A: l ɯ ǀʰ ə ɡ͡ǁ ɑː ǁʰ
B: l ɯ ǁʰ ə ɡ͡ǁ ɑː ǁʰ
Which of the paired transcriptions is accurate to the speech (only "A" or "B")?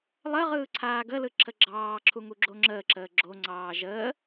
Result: B